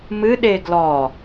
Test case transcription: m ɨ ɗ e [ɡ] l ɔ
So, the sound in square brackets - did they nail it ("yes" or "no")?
yes